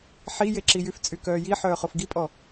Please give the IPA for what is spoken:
ħ i j e ǁ i j y f t͡sʼ y k œː j i ħ œː χ o f ɡ i pʼ ɔ

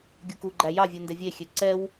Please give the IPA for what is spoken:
ɡʲ u k u ɡ͡ǃ æ j ɑ vʲ u n d ɛ vʲ e xʲ ø ǀ ɛ w

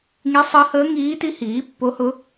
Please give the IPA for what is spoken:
ŋ i˧˥ sˤ əː˧˥ h əː˧˥ ŋ iː˧˥ t i˧˥ h iː˩˥ pː o˧˥ h ʊ˧˥

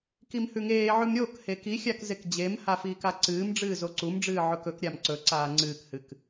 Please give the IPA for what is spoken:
k i m h ʉ ŋ eː ʕ ʉ m ɾʲ o k h e k i xʲ a k z e k d͡ʑ e m h a f iː k a ǀ ɨː m ɖ͡ʐ ɨː z o ǀ u m ɖ͡ʐ ɨː ʕ ɵ k ɵ k ɾʲ a m ǀ ɵ ǀ aː ŋ͡ǀ ɨː k h ɨ k

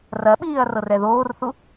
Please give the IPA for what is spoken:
r ɐ ɓ iː ɐ̯ r ɤ r ɛ ð oː r θ u

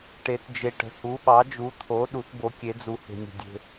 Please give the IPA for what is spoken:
ʈ e˩˧ t d͡ʒ e˩ ʈ ə̤˩ h u˩˧ ɓ ɑ˩˧ d͡ʒ u˩˧ t̪ʰ o˩˧ ɗ u˩˧ t b o˩˧ kʲ e˩˧ d͡z u˩ h e̤˩ nʲ ə̤˩ dʲ e̤˩

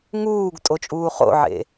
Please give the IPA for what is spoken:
ŋ uː ɡ tʼ o t͡ʃʼ uː χ o̰ ʕ ḛ

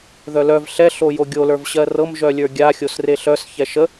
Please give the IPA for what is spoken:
ð œ l œ v ɬ ɛ ɬ o j o ɡʲ o l ə˞ v ɕ ɜ r ɤ m ʒ œ lʲ ə˞ ɡʲ a xʲ o s r e ɬ œ s ç ɛ ʃ ə

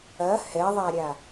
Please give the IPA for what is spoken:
ɐ h ɛ ðˤ a ɾʲ a

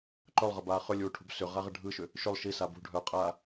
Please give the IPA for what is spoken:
ǃ œ lˠ ʁ ə b aː χ ʏ lʲ uː ʈʰ ṳ b s ʏ ʁ a ʁ ə ɖʱ ɯ ʃ ʏ | ʃ ʏ lˠ ʃ i s a b ṳ ɖʱ œː qʼ aː

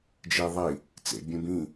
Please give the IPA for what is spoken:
d͡ʒ i ðˤ i | t͡s ḛ bʲ ũ b ĩ

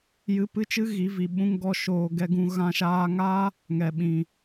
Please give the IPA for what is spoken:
j ɨ˧ p ɨ˦ t͡ʃ ɨ˦ ɣ i˨˦ v i˨ ɓ ũ˦ ŋ ɡ ɔ˦ ʃ oː˧ ɡ ɛ˧ ɡ ũ˧ ɣ ã˧ ʃ aː˧ ŋ aː˦ | ŋ ɛ˨ ɓ ĩ˨

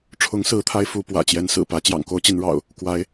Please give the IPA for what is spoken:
ʈ͡ʂʰ ʊ˨˦ ŋ s ɹ̩˨˦ t̪ʰ a˨˦ ɪ̯ f u˨˦ p w ä̰˨˩ t͡ɕ j ɛ˨˦ n s ɹ̩˨˩ p ä˨˦ t͡ɕ j ɑ̰˨˩ ŋ k o˦ ʊ̯ t͡ɕ i˨˦ n ɻ ɑ̰˨˩ ʊ̯ | k w a˨˦ ɪ̯

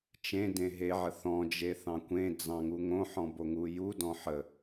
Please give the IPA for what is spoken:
t͡ʃ ẽ d ẽ ɦ e ʕ ə θ ɔ̃ d͡ʒ e θ ɑ̃ kʷ ẽ d͡z ɑ̃ ŋ u ŋ õ ħ ɔ̃ b o ŋ u j u d ɔ̃ ħ ə

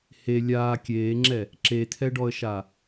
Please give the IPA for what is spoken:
h e lʲ aː kʲ eː ŋ͡ǁ ɛ | ǁ e t̪ʰ ɛ ɖ ɔ ə̯ ʃ a

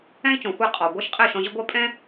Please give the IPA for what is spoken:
ɛ̃˥ i̯ t͡ʃ ɔ̃˩ xʷ ɛ˥˩ qʼ ɔ˩ ɡʷ ɛ˥ ʃ qʼ ɛ˥˩ ʃ ɔ̃˧ ʑ ə˥ ɡʷ ɛ˥ pʼ ɛ̃˥

